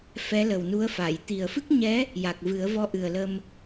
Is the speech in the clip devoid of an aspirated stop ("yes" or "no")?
yes